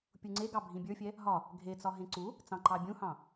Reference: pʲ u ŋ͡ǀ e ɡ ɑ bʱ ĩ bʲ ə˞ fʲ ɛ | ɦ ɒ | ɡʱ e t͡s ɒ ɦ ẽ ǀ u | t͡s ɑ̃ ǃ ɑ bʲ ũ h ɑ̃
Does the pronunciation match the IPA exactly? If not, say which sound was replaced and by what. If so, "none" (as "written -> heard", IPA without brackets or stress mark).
none